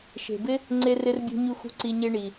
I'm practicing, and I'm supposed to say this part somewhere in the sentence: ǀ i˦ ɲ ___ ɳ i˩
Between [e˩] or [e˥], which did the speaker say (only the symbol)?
e˥